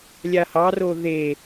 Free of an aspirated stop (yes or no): yes